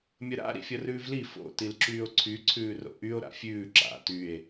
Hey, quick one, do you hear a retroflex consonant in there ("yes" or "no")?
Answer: no